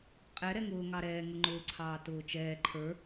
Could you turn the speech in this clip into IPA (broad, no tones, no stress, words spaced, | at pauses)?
qʼɛ ɾɛŋʊː ŋɑɾɛː ŋʊŋ͡ǃʊː ǀʰɑːtʊːt͡ʃɛː ǃʰə˞